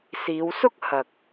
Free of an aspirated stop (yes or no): yes